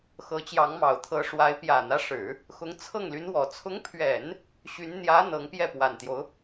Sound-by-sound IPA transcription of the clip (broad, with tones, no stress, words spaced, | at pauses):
xɤ˧˥t͡ɕjɑ˧˥ŋmɑ˨˩ʊ̯ t̪ʰɤ˧˥ʂwa˧˥ɪ̯ pjä˨˩n̪ä˦ʂɻ̩˨˩˦ | xʊ˧˥ŋt͡sʰɤ˥˩ŋly˧˥nwɔ˨˩ t͡sʰʊ˧˥ŋpʰɥɛ˨˩˦n | ɕy˧˥n n̪jä˧˥ n̪ɤ˧˥ŋpjɛ˥˩ pwa˨˩nt̪jo˦ʊ̯